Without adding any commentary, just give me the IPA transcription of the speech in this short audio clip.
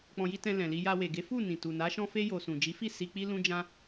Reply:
k͡p ɔ̃˧ j i˦ t ɛ̃˧ l ɛ̃˨ l i˧ j a˧ w e˨ ɡ e˨˦ f u˦˨ n ĩ˨ t u˨ n a˨˦ ʃ ɔ̃˧ f e˧ j o˨ s ũ˨ d͡ʒ i˨˦ f i˦˨ s i˧ k͡p i˦ l ũ˦ d͡ʒ ã˧

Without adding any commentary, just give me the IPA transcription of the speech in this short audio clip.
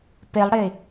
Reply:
p e lˠ ɽ e

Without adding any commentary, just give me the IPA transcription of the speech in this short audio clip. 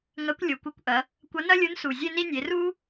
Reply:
ŋ ɐ˧˥ kʷ lʲ o˩˧ kʷ ɛ˧ kʷ ʔ ɐ˩˧ | kʷ ɐ˧˥ n ɐ˥ lʲ u˧˥ n s u˩ zʲ e˥ n i˥ nʲ e˩˧ r u˥

